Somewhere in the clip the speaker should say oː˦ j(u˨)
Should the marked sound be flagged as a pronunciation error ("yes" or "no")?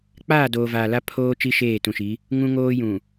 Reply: yes